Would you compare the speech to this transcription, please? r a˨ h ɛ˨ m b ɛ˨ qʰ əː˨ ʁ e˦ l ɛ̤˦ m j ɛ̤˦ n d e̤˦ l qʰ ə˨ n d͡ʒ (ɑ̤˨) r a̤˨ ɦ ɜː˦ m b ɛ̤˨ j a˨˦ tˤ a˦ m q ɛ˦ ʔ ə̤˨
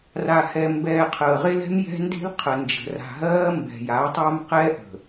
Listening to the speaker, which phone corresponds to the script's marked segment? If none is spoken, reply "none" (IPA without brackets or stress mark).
ə̤˨